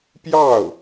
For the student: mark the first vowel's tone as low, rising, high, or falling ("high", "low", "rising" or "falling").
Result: falling